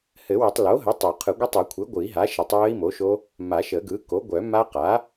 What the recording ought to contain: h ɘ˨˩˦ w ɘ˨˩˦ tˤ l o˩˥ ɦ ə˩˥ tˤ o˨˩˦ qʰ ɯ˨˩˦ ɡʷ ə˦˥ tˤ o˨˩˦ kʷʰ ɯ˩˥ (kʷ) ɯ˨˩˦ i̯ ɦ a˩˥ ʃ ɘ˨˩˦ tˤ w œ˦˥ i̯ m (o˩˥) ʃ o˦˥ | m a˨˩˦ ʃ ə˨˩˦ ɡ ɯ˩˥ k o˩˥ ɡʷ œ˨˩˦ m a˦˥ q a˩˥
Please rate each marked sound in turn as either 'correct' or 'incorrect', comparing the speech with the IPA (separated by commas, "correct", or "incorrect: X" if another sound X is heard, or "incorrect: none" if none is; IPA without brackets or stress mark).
incorrect: ɡʷ, correct